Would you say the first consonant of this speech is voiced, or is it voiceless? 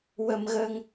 voiced